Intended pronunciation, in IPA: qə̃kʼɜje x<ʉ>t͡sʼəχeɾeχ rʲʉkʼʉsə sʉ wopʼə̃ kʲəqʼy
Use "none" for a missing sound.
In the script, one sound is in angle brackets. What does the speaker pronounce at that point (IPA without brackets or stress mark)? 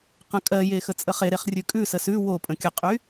ə